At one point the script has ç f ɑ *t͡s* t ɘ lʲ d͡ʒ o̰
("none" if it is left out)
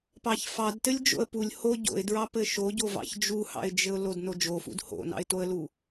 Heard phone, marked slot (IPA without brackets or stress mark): d